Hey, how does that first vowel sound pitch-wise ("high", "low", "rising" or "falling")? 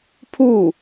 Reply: falling